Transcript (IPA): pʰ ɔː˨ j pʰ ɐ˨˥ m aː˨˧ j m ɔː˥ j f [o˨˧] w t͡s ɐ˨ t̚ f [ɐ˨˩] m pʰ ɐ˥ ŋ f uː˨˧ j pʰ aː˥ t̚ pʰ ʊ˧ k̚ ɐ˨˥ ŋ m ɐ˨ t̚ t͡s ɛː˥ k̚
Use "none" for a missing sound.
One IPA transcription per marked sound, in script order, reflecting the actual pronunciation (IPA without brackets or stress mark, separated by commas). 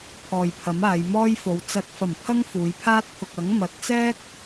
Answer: o˨˧, ɐ˨˩